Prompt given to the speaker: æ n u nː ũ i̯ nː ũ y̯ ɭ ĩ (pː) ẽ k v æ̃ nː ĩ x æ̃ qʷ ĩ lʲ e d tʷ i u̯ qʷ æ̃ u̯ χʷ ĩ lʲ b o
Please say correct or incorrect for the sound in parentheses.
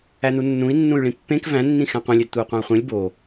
correct